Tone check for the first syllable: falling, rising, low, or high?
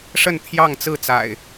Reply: falling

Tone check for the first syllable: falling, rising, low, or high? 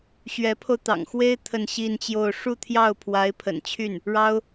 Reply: rising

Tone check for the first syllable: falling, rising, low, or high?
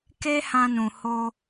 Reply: high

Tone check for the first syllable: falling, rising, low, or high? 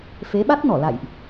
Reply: rising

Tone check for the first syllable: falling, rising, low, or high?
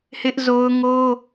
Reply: high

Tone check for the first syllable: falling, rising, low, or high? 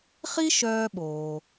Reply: high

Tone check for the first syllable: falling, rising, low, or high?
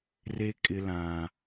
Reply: high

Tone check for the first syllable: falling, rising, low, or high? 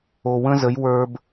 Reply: low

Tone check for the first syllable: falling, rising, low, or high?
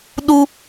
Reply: high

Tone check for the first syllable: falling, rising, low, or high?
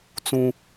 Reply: high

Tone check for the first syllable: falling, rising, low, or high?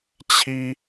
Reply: high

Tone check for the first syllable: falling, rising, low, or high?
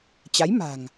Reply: rising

